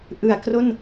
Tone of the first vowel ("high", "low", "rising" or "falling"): low